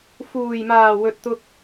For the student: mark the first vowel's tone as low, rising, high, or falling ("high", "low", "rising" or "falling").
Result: low